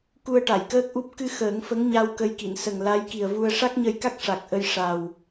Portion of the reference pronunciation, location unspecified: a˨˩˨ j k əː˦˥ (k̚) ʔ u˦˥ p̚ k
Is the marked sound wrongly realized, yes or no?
no